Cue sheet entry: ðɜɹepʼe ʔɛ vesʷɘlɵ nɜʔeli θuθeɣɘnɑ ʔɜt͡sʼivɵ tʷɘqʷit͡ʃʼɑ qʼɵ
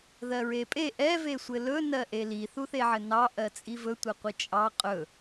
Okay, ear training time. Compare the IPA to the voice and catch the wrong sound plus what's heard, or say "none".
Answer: ɣ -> ʕ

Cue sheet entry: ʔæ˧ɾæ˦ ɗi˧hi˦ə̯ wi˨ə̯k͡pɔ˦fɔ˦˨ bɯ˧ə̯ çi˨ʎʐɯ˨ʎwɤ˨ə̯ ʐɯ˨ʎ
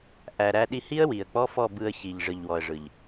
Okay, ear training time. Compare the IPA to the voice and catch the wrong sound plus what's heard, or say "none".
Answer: ɤ˨ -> ɔ˨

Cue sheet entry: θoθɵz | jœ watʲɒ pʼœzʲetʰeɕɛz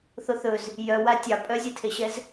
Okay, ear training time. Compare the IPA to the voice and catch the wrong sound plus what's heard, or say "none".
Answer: ɒ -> ɑ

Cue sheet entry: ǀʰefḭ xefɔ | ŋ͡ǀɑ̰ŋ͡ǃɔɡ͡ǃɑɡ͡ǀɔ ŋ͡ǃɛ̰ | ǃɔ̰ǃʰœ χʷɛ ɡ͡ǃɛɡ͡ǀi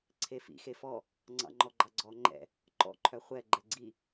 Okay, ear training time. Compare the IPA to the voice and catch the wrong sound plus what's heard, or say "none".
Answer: none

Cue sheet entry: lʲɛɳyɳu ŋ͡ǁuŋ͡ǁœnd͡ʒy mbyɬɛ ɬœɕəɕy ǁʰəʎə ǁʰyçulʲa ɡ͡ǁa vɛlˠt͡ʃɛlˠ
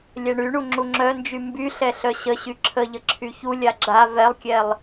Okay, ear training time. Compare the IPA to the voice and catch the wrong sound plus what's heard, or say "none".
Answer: t͡ʃ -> kʲ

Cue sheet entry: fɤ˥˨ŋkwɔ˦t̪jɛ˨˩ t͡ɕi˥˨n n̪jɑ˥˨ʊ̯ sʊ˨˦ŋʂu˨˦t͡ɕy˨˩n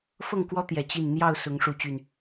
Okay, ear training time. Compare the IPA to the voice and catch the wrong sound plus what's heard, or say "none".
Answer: none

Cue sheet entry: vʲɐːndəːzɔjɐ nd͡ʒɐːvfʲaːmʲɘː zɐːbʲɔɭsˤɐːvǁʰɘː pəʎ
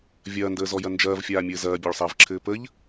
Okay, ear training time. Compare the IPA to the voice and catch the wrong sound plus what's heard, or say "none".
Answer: none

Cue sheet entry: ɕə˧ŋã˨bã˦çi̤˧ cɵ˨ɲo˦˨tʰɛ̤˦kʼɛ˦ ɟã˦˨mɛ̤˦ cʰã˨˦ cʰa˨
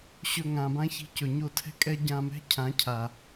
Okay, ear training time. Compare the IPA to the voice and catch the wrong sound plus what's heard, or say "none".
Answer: ə˧ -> ɵ˧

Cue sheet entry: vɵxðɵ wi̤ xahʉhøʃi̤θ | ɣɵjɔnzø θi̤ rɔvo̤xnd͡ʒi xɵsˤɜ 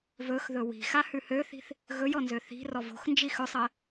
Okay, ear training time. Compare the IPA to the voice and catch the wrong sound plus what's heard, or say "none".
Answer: ʃ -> θ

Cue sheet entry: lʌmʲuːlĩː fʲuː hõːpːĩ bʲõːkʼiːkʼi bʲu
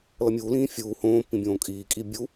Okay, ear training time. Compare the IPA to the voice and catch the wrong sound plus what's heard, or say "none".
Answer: none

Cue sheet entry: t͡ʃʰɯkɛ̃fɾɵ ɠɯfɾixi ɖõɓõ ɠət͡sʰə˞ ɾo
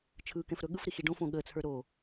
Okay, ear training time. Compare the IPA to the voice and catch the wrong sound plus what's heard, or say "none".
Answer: ɓ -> f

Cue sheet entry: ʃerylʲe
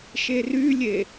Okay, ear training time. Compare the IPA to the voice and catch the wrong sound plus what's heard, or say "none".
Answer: none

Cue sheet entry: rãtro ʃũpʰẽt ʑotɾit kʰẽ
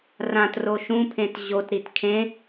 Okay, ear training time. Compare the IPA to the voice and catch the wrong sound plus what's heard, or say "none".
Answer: none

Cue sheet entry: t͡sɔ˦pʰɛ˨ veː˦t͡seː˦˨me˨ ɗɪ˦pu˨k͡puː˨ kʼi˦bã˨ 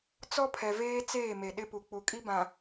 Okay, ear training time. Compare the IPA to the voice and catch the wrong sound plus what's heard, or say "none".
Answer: uː˨ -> u˨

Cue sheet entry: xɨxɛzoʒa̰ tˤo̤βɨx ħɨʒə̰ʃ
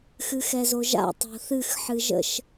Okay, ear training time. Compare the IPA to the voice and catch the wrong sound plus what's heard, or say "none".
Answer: β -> θ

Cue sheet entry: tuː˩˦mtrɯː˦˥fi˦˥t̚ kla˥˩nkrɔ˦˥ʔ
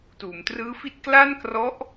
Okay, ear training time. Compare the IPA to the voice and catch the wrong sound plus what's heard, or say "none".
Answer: none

